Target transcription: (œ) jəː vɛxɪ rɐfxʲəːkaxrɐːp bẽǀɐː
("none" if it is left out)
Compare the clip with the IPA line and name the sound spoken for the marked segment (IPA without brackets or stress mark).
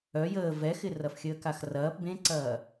œ